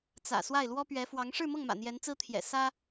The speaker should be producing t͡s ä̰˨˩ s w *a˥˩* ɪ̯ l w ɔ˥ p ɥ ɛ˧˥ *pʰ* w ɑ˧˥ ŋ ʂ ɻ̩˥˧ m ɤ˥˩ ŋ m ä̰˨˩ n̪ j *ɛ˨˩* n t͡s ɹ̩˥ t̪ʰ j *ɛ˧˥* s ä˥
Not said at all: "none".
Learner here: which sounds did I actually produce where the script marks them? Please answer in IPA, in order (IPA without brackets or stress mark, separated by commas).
a˥˩, f, ɛ˧˥, ɛ̰˨˩